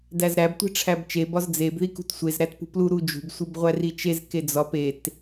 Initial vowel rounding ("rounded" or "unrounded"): unrounded